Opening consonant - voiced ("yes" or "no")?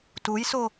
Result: no